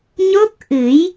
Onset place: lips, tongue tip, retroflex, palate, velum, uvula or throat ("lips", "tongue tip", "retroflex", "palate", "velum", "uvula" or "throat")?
palate